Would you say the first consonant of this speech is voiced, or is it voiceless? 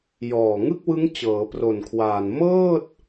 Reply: voiced